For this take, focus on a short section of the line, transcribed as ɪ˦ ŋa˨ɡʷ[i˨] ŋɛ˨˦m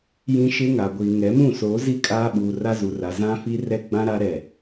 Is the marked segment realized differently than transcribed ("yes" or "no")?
no